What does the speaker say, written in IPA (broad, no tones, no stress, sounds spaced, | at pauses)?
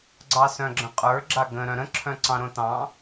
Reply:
ɡ͡ǀ ɑ s œ̃ ɡ͡ǁ ə̃ qʼ ə˞ ɡ͡ǁ a ɡ ə̃ ɾ œ̃ ɾ ə̃ ǁʰ œ̃ ǀ ɑ̃ ɾ õ t ɑ̃